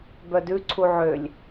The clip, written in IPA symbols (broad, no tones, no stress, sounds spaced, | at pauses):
b œ d ʉ ǀʰ u ʕ ø lʲ